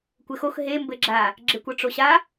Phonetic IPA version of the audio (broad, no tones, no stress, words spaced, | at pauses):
kʷɘxox ɦe mbɘɡ͡ǁa | ɡ͡ǁekʷɤʈ͡ʂoɕa